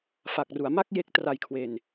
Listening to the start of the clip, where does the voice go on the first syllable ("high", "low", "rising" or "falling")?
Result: low